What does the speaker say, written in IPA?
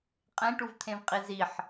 qʼ ẽ ʈ u v t̪ʰ ẽ v qʼ i z i ħ

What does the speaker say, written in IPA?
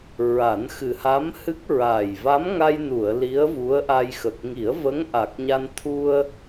ɹ a˨˩˦ n x ɨ˨˩ h a˧˥ m h ɨ˦˥ k̚ ɹ a˨˩ j v a˧˥ m ŋ a˧ j n u˨˩˨ ə̯ l i˧˥ ə̯ v u˧˥ ə̯ ʔ a˧ j x ə˨˩ k̚ ŋ i˨˩˦ ə̯ v ə˧˥ ŋ ʔ a˨˩ k̚ ɲ a˧ n t̪ʰ u˧ ə̯

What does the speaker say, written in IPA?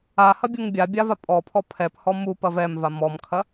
a h ɐ bʲ u ŋ bʲ a bʲ a v a pʼ ɔ pʰ ɔ pʰ ɛ p h ɔ m u p ɐ v ɛ m v a m ɔ m kʰ ɐ

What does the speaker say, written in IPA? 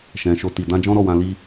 ʃ ɛ̃˨ ʃ o˧ t i˨ d ã˧ d͡ʒ ɔ̃˦ ɾ ɔ˦˨ w ã˧ l i˧

